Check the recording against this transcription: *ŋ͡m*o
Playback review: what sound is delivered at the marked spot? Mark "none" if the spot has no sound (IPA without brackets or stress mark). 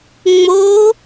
ŋ͡m